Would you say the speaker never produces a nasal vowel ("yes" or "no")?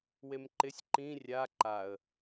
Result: no